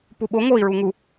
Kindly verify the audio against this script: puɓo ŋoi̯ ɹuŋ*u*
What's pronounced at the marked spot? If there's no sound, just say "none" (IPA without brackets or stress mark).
u